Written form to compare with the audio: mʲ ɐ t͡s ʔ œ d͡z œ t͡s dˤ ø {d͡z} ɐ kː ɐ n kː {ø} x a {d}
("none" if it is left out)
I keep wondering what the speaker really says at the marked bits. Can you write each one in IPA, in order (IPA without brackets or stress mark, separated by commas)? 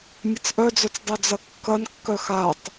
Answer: d͡z, œ, tˤ